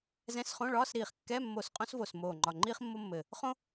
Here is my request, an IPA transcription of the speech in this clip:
zɛ̃˧˥˧sχõ˧˥˧ɭɒː˧˥˧sɾiː˧˩χ kːɛ˧˥˧mːo˧˩s qʼõ˥svoː˧˩smoː˧˩ŋ͡ǃɒ˧˩ ŋ͡ǃiː˥χmːo˥mːɘ˧˩ | χõ˥

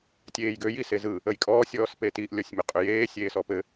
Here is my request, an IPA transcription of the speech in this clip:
tʲeːjɡø jisezɯ | əjkʼɔːsʲ ɔːspetiʔ lʲɔsʲmʏqʼʏjeː sʲeːsɔpɘ

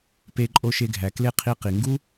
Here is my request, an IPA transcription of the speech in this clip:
pe˧ ǃʼo˧ʃe˧ɡʱæ˨ kle˦ qʰi˦qi˨ ŋɡu˦

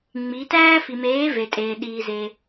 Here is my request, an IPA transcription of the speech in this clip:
ŋ͡mi˩˧ tæː˦fi˩ meː˩˧ ve˩tʼeː˩ ɗiː˩ze˩

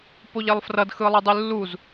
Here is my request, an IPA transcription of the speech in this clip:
poʎɛlˠfrʌd xɯlˠɯdˤɯlːuz

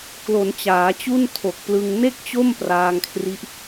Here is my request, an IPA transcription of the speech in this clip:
klo˩˦n t͡ɕaː˩˦t͡ɕu˥˩ntʰo˨˩k̚plɯ˧ŋ ne˥˩k̚t͡ɕo˥˩m praː˧ŋkʰri˦˥ʔ

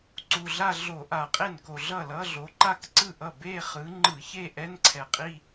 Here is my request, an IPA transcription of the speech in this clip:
ǀu˨˩ ɮa˥˧ ɮo˧˩˧ ʔa˧˩˧qʼe˥˩nko˨˩ ɮʌ˥˩lʌ˧˥˧ɮo˨˦ ǃa˥˧kǀɯ˥˩ʔʌ˥˩ be˥˧χɯ˨˦ŋ͡ǃɯ˧˩˧çe˥˧ ʔɛ˧˥˧nǀʰɛ˨˩qʼi˥˧

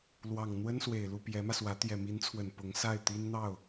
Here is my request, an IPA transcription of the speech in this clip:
lwɑ˨˩ŋ n̪wə˥nswe˨˩ɪ̯lu˥˩ pjɛ˧˥mä˧swä˧˥ t̪jɛ˨˩mi˧˥nt͡sʰwə˨˩n pʊ˧˥ŋsa˥˩ɪ̯ t̪i˥nn̪ɑ˥˩ʊ̯

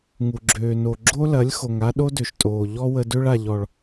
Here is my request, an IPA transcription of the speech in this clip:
ŋu˨ɡ͡ǁøː˨no˨ ɡ͡ǁo˦lɐ˨˦lʲ xo˨ŋa˦ ɗo˦dø˨ʃtʼoː˨ ʎɔ˦wə˧dø˦ɭ a˨ʎɔ˨ɭ

